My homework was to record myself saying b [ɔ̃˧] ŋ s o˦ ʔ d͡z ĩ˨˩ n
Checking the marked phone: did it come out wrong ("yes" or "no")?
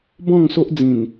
yes